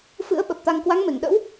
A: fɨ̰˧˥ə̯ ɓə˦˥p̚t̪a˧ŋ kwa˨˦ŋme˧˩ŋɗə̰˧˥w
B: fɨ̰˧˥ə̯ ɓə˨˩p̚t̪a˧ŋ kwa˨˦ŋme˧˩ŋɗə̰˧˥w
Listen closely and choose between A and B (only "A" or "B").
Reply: B